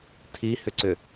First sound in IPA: tʰ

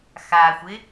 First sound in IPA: x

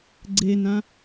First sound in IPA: ɡ͡ǀ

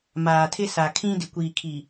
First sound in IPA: m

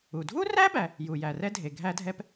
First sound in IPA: u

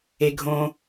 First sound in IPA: e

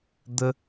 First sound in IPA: d̪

